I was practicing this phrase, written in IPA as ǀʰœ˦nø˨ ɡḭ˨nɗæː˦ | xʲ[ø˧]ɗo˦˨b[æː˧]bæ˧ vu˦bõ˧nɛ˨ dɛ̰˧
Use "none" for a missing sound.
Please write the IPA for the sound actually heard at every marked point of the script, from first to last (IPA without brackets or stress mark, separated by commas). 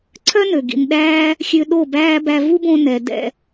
ø˧, æː˦